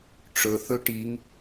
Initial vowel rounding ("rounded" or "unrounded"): rounded